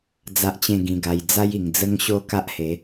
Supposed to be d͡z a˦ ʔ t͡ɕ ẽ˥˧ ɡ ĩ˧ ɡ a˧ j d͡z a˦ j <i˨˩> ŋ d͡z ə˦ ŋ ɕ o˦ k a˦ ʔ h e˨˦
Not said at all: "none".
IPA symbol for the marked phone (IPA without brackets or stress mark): i˨˩